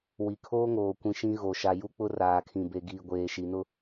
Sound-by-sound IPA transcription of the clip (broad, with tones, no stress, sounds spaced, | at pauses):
w i˨ kʰ oː˦ ŋ oː˨ kʷ ĩ˨ ʃ ĩ˦ ɣ o˨ ʃ a˨ j u˦ k͡p ʊ˦ r aː˨ kʰ ĩ˨ b e˨ ɡ iː˨ ɡʷ eː˨ ʃ i˨ n ʊ˦